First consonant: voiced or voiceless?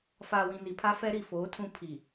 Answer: voiceless